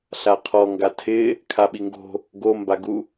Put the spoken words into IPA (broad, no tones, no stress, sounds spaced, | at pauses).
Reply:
ɬ a qʰ ɔ ŋ ɡ a tʰ ɪ | kʰ a ɓ i ŋ ɡ o̤ | ɡ o m b a ɡ u